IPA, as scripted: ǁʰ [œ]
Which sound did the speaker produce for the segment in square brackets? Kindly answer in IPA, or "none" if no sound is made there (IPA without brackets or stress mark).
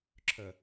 œ